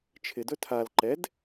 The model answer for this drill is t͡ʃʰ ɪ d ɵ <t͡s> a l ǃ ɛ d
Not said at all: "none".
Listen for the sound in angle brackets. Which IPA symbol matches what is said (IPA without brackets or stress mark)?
tʰ